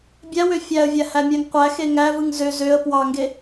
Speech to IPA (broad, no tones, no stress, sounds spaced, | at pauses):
bʲ æ w ø fʲ æ ə̯ vʲ æ h æ mʲ æ ŋ qʷ æ x e ŋ æ v ɯ ŋ z ø z ø ə̯ p w ɑ ŋ ɡ e